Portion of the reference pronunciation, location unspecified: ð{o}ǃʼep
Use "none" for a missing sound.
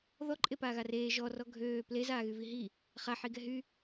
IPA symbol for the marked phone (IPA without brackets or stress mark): ɔ